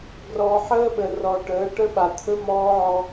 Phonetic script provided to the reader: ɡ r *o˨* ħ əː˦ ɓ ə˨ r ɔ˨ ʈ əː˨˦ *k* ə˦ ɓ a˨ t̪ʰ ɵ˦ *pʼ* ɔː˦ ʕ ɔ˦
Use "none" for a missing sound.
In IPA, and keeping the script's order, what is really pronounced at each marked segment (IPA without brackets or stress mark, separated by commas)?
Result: ɔ˨, ʈ, m